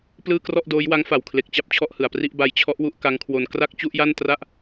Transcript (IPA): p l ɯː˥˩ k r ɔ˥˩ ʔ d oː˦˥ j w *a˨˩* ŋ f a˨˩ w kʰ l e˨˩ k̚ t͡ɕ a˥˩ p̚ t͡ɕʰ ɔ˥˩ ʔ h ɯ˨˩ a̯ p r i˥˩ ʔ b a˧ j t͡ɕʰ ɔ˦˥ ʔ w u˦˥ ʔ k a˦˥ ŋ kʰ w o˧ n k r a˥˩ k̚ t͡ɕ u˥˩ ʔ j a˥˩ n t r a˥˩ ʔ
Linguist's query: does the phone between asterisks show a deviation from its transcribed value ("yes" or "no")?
yes